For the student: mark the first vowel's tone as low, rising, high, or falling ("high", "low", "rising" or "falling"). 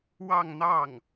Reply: falling